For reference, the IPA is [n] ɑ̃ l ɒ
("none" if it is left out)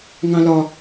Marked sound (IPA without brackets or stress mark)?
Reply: ŋ